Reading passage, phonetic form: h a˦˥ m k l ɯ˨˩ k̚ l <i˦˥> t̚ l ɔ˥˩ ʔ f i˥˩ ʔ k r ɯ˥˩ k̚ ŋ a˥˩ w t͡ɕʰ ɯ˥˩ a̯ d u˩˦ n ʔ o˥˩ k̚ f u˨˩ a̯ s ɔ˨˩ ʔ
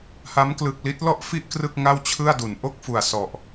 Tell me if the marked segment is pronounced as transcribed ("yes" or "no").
yes